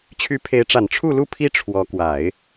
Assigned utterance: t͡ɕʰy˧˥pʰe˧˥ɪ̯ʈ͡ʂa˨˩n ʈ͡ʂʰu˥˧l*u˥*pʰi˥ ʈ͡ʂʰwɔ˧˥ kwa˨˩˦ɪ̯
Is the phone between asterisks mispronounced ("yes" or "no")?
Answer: yes